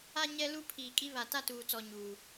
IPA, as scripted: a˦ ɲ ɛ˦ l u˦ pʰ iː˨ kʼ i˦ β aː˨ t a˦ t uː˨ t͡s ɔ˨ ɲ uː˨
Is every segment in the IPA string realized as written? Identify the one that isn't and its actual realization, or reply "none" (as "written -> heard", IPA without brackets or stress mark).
aː˨ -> a˨